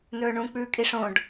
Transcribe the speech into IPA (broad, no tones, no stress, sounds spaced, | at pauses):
n ɵː ɳ ũ k͡p ʉː kʼ i ʂ õ ɖ